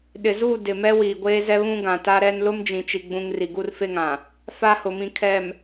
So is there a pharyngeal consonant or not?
no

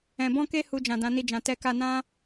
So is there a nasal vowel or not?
yes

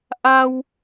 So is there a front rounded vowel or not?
no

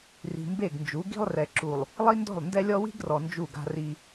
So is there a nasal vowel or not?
no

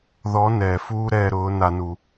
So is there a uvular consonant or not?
no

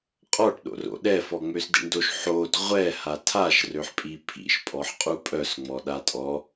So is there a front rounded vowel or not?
yes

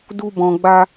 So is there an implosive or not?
no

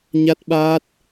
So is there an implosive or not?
yes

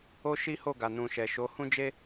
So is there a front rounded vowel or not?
no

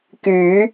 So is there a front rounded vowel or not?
yes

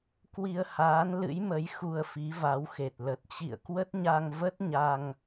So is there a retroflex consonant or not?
no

